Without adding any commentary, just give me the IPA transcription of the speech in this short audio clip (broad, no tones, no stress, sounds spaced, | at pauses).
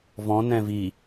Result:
v ɔ̃ n ɛ̃ v i